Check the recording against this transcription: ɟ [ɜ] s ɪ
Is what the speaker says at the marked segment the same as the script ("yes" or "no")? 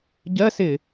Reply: yes